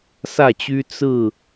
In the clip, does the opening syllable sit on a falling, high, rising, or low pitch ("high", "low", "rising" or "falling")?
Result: falling